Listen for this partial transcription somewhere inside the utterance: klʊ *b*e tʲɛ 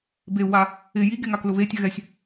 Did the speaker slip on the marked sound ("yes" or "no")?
yes